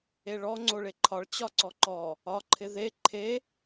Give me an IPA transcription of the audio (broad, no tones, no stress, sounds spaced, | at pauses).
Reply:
e ɭ ɔ ŋ͡ǀ o ɭ e ǃʰ ɒ ɭ t͡ɕ ɒ ǀ ɔ ǃ ɔ | ɒ ǃʰ ɪ ð e ǃʰ e